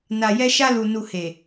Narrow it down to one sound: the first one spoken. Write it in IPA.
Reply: n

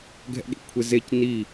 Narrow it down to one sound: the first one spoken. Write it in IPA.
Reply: ɡʱ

